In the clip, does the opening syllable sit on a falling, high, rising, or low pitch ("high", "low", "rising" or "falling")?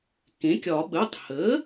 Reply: rising